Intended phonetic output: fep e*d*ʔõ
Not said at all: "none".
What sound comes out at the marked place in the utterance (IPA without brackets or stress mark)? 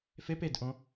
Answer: d